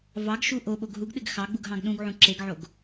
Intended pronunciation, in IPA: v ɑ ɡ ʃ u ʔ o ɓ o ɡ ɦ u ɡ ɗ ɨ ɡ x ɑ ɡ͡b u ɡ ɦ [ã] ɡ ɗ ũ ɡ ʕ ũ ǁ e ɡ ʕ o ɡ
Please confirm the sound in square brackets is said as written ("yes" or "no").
no